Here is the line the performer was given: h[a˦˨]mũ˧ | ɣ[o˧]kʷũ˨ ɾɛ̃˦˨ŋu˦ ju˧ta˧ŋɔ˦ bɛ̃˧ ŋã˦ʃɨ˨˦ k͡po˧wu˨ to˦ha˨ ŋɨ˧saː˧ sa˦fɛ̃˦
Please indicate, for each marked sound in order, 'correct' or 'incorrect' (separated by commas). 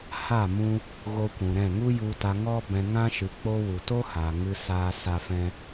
correct, correct